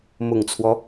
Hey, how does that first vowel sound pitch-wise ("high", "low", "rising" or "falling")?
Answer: low